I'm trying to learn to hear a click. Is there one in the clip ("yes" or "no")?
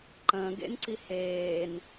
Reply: yes